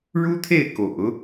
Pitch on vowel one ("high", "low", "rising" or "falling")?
high